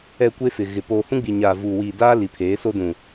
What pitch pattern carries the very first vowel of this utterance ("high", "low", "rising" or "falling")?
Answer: low